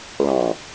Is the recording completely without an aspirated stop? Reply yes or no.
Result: yes